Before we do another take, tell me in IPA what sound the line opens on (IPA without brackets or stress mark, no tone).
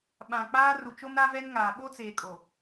ɓ